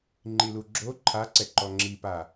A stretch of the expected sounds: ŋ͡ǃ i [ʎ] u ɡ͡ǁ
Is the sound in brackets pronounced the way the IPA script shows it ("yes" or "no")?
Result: no